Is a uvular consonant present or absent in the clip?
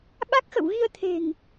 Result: absent